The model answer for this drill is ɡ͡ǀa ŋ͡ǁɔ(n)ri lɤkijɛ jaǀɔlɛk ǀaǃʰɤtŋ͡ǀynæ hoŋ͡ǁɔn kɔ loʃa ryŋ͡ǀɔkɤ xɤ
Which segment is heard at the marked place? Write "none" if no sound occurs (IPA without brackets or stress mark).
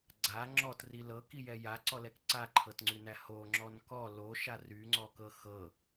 t